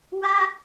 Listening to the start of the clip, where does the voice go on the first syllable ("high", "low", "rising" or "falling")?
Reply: high